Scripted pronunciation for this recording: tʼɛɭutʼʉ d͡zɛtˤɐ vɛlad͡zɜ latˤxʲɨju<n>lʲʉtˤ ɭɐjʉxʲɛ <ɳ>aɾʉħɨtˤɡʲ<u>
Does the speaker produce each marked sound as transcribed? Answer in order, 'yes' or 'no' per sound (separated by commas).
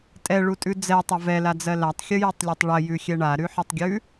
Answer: no, yes, no